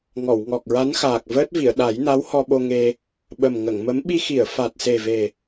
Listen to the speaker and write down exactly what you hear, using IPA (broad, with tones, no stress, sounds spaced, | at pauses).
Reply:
ŋ ɔ˨˩˨ w ŋ ɔ˨˩ k̚ ɹ a˧˥ n x aː˨˩ k̚ v əː˦˥ t̚ v i˨˩˨ ə̯ ɗ a˨˩˦ j n a˧˥ w h ɔ˧ ɓ o˧ ŋ e˧ | ɓ ə˨˩ m ŋ ə˨˩˨ ŋ m ə˧˥ m ɓ i˧ x i˨˩˨ ə̯ f a˨˩ t̚ s e˨˩ v e˨˩